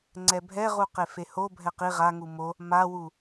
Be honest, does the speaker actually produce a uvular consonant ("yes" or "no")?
yes